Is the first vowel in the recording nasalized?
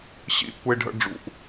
no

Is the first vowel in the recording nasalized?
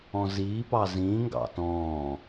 yes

